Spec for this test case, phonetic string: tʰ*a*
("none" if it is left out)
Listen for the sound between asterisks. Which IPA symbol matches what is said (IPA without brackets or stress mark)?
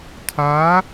a